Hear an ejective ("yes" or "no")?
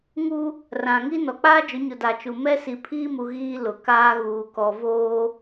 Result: no